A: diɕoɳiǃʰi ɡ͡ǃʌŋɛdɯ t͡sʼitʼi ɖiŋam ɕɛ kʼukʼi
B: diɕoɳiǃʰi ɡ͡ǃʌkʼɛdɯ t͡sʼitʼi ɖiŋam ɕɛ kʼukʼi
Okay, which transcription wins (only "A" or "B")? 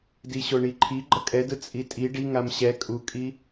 B